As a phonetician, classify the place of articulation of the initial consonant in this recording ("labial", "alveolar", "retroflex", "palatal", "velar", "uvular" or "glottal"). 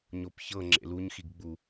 palatal